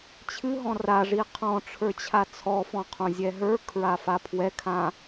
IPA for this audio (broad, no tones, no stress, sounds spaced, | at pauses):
t͡ɕʰ ɨ ɦ ɔ̃ r a ʐ i qʰ ɔ̃ ʈ͡ʂʰ ə˞ t͡ɕʰ a t͡sʰ ɔ f ɔ̃ qʰ õ zʲ ɛ ɦ ə˞ kʰ ɹ a f a pʰ w ɛ kʰ ã